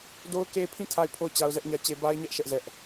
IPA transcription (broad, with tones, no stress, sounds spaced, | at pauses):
d o˦ ʊ̯ k e˦ pʰ ĩ˦˨ tʰ a˦˨ ɪ̯ pʰ o˦˨ ʊ̯ t͡ɕ a˦ ʊ̯ z ɛ˦ ʔ ɲ ä˦ t͡ɕ e˦ b a˦ ɪ̯ ɲ ɛ˦ ʔ ʃ ɛ˦ ʔ z ɛ˦ ʔ